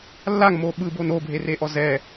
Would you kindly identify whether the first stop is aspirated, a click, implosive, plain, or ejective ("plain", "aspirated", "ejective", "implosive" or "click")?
implosive